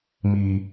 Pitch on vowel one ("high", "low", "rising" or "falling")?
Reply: low